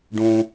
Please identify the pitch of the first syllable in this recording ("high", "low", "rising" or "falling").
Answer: low